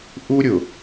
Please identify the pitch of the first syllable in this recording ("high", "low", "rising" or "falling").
high